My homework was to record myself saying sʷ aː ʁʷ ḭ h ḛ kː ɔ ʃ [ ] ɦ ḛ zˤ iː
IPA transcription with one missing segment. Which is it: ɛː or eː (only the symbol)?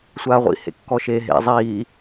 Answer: eː